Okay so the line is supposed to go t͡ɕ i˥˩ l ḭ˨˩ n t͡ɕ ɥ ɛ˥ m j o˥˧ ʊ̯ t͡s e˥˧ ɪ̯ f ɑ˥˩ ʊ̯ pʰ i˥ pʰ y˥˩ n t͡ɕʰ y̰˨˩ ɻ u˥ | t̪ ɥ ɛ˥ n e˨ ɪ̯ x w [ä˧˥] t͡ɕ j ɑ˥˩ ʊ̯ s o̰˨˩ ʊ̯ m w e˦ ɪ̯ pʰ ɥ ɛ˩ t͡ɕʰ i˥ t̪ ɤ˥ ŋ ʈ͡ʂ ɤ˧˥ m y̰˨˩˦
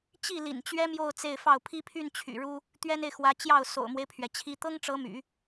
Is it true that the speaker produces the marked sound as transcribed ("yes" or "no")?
yes